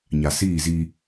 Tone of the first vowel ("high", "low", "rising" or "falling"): low